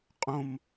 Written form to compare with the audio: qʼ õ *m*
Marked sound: correct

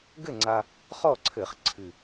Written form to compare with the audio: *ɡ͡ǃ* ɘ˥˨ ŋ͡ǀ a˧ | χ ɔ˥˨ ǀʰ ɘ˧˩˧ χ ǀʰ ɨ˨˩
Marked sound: incorrect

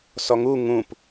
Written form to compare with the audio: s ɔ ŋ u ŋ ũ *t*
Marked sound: incorrect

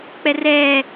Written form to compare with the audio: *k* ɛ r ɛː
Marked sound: incorrect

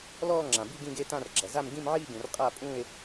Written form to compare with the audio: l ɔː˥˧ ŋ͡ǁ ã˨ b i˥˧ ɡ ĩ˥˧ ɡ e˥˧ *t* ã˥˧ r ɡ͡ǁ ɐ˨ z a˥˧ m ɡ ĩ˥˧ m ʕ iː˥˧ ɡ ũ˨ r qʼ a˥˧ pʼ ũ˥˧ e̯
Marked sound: correct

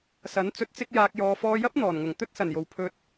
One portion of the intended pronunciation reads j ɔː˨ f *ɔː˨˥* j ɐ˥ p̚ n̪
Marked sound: incorrect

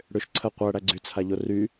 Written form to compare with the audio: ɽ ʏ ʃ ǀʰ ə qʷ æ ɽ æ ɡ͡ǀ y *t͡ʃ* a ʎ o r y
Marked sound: incorrect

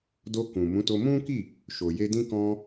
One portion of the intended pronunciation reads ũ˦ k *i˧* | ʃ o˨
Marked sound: incorrect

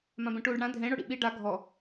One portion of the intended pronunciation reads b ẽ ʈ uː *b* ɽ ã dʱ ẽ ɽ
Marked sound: incorrect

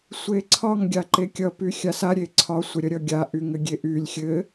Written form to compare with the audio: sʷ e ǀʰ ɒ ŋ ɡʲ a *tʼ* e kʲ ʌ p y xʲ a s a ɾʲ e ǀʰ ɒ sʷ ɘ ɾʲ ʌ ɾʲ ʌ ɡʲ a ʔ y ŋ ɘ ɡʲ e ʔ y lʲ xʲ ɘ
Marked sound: incorrect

